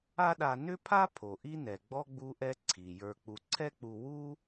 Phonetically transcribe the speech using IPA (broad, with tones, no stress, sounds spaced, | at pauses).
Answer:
a˥ ɗ a˧ n ʏ˥ pʰ a˥ pʰ o˩ ʔ i˥ n ɛ˩ ɡ͡b ɔ˥ ɡ͡b u˥ ʔ ɛ˥ ǀʰ i˩ j ə˞˧ k͡p u˧ ǀʰ ɛ˥ k͡p u˧ w u˥